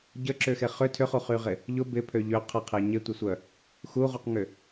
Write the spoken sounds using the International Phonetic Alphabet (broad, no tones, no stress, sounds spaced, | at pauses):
ɟ ə ǁ ʏ x e χ ʏ tʰ ʏ χ u χ y ʁ ɪ | ʎ ʊ b ɪ pʰ ø ʎ ø qʰ ɐ qʰ e ɲ ɪ tʷ ɪ sʷ œ | x u ʁ u q ŋ ʏ